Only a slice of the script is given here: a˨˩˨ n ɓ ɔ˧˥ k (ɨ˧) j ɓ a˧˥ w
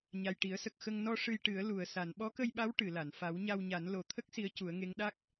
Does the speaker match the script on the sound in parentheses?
no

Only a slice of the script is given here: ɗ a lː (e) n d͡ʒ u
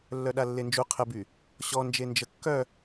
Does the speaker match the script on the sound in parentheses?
yes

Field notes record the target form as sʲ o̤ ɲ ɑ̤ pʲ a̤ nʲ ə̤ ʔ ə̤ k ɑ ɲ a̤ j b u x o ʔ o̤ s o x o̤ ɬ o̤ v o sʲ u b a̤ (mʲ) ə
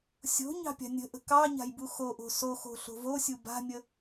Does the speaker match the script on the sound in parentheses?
yes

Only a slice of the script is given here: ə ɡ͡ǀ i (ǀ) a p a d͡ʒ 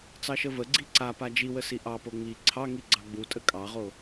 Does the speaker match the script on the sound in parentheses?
yes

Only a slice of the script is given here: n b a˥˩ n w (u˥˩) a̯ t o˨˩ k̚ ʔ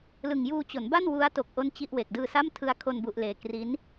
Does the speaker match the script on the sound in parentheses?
no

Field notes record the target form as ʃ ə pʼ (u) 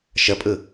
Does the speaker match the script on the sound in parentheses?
no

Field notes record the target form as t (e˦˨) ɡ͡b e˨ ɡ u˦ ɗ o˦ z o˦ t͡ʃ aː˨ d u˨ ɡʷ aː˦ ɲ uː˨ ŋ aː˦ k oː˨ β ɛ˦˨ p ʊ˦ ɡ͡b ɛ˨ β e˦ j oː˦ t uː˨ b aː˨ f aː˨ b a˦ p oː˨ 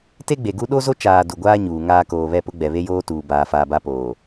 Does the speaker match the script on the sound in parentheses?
no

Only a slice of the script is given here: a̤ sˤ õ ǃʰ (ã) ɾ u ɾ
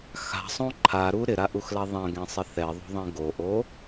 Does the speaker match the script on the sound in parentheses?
no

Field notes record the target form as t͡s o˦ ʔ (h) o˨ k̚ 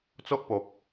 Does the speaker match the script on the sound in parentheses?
no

